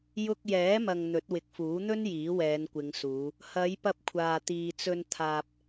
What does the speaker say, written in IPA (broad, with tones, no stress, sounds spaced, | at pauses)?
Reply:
j ʊ˧ k̚ j ɛː˨˥ m ɐ˨ ŋ n̪ ɵ˨˥ t̚ w ɪ˨ k̚ f uː˨˥ n̪ ɵ˥ n j iː˨˥ w ɛː˨˧ n kʷ ɪ˨˧ ŋ s uː˨˧ | h ɐ˨˧ j p ɐ˧ p̚ kʷʰ aː˨ t̪ iː˨ t͡s ɵ˧ n t̪ʰ aː˧ p̚